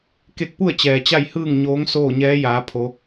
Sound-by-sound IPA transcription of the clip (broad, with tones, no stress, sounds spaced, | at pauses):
k e˧ k̚ p u˥˨ ə̯ t͡ɕ ɛː˩ t͡ɕ a˥˨ j h ɯː˥˨ ŋ ɲ oː˧˥ ŋ s oː˥˨ ɲ ɛː˧˥ j aː˩˧ pʰ o˩˧